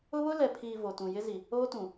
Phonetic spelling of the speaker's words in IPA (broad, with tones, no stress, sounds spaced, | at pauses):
ʊ˦ β ʊ˦ l ɛ˨ pʰ iː˨ v o˨ t ũ˨ j ɪ˦ z i˨ | oː˦ t ũ˨